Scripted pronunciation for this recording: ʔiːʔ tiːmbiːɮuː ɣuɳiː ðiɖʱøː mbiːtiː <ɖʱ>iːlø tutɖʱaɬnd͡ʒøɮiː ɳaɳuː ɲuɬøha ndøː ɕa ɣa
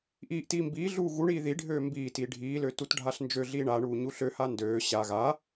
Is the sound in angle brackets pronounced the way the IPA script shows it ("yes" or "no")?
yes